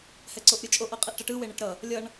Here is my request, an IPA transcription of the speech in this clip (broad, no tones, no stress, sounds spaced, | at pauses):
h ɛ ǀ o ʔ ɾʲ ɯ t͡ʃʼ o ʔ ʌ qʼ e ʔ ʈ ʌ ʈ ɯ w e ɳ ɛ ʈ ɾ ʌ | lʲ ʌ ɳ